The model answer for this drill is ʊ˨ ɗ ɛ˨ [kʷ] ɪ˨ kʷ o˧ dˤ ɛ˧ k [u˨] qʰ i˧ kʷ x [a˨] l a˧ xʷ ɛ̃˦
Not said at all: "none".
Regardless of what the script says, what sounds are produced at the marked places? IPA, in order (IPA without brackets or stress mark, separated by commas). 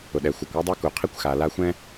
xʷ, u˨, a˨